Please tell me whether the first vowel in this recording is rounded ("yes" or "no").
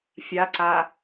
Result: no